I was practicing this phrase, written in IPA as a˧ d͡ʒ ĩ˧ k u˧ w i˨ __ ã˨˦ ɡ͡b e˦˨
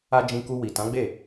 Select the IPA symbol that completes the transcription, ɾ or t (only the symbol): t